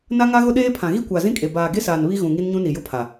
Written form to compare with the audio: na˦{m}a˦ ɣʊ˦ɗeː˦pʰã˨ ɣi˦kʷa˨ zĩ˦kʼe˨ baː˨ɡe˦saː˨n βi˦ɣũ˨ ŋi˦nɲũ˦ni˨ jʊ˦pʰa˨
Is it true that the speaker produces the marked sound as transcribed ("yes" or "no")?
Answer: no